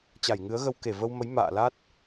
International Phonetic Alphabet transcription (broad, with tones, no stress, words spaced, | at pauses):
t͡ɕa˧˩jŋɨ˨˦ə̯ɣə˧w ke˧˩və˧wmə˨˦j ma̰ː˧˨la˦˥t̚